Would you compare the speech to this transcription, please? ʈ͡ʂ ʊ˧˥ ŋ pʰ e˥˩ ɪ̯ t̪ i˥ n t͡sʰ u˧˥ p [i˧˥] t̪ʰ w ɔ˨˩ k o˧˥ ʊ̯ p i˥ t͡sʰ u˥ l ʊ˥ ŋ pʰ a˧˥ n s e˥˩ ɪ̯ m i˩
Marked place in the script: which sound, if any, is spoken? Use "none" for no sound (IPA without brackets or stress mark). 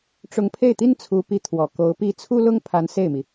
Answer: i˧˥